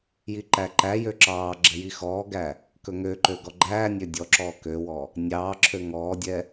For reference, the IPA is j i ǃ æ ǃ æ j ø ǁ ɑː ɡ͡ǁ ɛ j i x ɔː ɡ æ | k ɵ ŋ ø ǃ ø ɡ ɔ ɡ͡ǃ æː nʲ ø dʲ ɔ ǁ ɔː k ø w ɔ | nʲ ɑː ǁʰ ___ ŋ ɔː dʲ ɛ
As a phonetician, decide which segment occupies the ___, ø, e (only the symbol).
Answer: ø